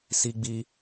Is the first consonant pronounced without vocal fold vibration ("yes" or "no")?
yes